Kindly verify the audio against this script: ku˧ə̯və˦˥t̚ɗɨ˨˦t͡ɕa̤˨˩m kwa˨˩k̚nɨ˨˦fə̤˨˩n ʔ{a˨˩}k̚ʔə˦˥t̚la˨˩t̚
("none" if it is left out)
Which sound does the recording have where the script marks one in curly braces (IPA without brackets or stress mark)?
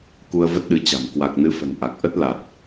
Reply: a˨˩